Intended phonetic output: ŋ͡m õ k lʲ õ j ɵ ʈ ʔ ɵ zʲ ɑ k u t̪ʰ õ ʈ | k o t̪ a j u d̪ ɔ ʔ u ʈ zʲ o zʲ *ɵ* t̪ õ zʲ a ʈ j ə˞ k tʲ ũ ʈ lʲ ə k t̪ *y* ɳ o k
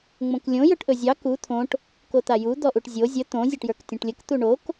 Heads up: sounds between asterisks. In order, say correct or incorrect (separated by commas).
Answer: incorrect, incorrect